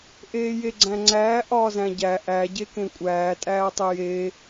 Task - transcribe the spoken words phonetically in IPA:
ʔ eː j e ɡ͡ǀ æ̃ ŋ͡ǀ æː ʔ ɒː z æ̃ ɟ æ ʔ æ ɟ e k ẽ kʷʼ æː tʼ æː tˤ e j e

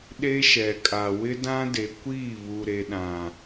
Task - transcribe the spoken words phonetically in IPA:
ɗ e˦ ʃ ɛ˨ kʼ a˨ w ɪ˦ d ã˦ d e˨ kʷ iː˦˨ β u˨ ɾ e˨ ɗ ã˨

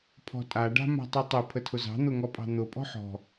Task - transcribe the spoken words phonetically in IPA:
pʰ ɔ̤ tʼ a ɖ a̤ m a̤ tˤ u tˤ e pʰ ə tʰ ʊ z ɑ̤ n̪ ʊ ŋ ɔ pʼ ɑ̤ n̪ ʊ pʼ ɔ̤ ħ ɔ̤

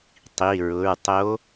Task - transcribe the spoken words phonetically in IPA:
tˤ i˩˧˩ ɹ ʊ˩˧˩ ɹ tˤ o˧˥

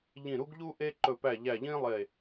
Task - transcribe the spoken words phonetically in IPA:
ʎ ĩ˨˩ ɾ u˧ ɡ ʎ u˧ ʔ e˧ ǃ ɵ˨˩ p æ˨˩ ʎ æ˨˩ ʎ ĩ˧ lˠ e˨˩

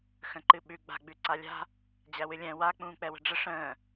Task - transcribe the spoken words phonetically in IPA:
x ə̃ ǃ ɨ ɓ ʉ ɡ͡b a̤ ɡ͡b ʉ ǀ a lʲ a̤ | d͡ʑ æ w ɨ lʲ ɛ̃ w a k͡p ũː k͡p ɛ w ə̤ ɖ͡ʐ ə ʂ ə̃ː

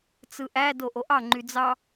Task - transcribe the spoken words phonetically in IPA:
t͡s ɯ ʔ æ d o ʔ o ʔ ɑ ŋ͡ǃ y d͡z ɑ

